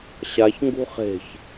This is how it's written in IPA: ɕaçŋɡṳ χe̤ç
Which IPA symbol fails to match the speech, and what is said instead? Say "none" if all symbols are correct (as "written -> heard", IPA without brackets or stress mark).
none